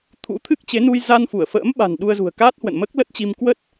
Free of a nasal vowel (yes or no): yes